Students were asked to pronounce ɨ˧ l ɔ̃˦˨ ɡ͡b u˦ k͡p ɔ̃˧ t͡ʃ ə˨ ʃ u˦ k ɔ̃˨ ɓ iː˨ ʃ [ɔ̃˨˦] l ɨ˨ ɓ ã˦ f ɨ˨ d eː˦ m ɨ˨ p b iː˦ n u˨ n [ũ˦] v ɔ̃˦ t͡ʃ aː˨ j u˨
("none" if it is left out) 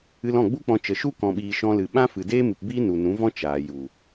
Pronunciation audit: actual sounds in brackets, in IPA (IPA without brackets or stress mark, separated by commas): ɔ̃˧, ũ˨˦